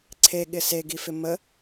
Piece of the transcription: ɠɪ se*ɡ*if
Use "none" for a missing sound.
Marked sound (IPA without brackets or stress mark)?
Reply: ɡ